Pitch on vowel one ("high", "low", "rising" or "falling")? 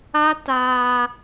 high